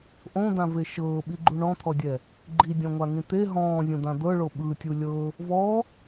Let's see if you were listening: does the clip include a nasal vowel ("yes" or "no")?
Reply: yes